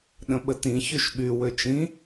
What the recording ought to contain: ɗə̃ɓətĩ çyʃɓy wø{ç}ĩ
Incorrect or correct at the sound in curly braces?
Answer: incorrect: t͡ʃ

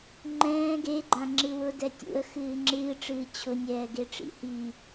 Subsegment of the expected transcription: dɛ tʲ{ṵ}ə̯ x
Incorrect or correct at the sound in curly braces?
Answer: correct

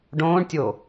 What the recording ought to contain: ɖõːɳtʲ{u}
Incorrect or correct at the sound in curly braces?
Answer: incorrect: o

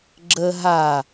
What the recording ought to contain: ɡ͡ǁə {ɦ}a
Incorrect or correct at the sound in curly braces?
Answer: correct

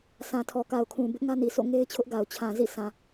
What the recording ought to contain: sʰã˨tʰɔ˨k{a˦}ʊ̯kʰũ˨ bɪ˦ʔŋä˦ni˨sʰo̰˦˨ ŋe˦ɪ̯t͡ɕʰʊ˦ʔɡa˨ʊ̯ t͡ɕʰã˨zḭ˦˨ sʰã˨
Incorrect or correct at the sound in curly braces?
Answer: incorrect: a˨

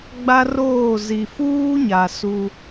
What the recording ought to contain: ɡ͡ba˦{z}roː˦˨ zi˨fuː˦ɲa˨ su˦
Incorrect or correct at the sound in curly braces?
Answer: incorrect: none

